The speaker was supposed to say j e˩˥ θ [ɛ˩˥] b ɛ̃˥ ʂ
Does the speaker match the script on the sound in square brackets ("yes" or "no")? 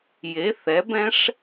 yes